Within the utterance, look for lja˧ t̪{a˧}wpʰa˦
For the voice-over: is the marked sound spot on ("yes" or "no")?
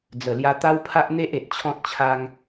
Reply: no